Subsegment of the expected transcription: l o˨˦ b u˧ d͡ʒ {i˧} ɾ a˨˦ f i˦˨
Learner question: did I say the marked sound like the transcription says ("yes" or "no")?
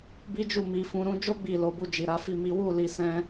no